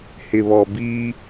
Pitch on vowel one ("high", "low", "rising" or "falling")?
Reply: low